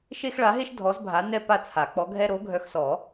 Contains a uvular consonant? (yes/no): no